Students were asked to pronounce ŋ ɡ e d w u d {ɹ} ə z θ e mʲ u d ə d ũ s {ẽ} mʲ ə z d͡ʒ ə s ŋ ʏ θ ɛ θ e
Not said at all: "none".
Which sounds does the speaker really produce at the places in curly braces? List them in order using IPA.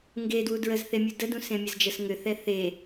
ɹ, ẽ

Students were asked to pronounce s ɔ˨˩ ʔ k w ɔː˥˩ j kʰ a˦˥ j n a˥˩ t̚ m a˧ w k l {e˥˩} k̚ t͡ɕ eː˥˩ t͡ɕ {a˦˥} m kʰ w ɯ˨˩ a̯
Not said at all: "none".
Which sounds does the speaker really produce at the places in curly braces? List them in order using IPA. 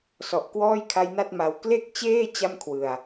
e˥˩, a˥˩

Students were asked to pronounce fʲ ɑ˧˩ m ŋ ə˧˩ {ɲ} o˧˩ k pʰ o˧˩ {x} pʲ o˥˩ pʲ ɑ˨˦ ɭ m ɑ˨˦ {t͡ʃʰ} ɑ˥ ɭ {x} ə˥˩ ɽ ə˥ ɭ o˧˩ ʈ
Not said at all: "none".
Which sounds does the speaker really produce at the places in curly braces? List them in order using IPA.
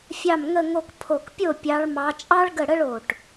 ŋ, k, t͡ʃʼ, ɡ

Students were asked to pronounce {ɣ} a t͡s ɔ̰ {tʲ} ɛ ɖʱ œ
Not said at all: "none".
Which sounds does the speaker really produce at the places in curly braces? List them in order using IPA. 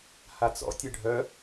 h, tʲ

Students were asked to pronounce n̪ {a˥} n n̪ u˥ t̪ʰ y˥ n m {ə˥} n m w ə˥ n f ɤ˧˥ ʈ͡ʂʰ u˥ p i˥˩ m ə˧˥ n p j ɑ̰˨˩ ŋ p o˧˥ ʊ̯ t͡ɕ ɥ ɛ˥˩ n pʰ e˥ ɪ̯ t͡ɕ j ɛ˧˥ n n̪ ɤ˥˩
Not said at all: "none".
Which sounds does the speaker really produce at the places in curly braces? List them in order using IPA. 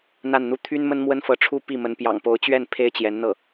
a˥˩, ə˥

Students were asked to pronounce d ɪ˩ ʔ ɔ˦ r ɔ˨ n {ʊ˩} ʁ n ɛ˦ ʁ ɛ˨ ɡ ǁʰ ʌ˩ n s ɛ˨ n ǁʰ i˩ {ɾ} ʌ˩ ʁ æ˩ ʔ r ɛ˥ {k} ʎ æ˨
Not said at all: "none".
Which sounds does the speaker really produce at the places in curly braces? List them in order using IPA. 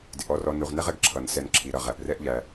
u˩, ɾ, ʔ

